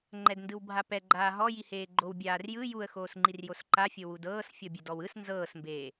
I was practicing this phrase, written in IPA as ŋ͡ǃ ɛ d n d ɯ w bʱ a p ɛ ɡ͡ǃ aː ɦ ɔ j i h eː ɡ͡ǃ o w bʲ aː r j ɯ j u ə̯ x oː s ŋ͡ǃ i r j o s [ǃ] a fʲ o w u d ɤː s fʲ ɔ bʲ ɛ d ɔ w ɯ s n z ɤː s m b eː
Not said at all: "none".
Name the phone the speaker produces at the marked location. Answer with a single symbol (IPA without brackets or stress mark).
ǃ